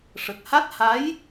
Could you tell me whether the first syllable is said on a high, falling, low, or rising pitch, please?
low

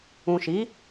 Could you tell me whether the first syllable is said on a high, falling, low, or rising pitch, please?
low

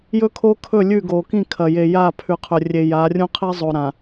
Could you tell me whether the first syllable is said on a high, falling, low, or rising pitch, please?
high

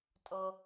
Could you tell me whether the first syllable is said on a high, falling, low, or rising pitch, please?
high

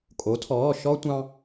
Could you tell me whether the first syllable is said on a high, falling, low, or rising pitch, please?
rising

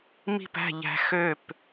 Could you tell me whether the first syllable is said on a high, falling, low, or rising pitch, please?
falling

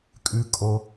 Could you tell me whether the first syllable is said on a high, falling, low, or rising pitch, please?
low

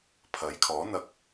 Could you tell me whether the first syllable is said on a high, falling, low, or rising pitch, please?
rising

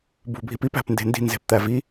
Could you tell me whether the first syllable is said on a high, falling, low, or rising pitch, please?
low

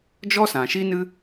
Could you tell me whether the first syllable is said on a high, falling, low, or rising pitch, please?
high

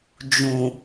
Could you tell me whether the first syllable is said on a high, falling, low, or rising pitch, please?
low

